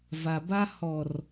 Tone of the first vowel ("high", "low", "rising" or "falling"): low